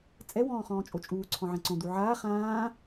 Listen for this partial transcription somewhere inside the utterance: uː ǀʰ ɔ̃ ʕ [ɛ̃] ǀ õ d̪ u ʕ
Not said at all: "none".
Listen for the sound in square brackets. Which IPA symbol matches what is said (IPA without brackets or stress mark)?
ɛ̃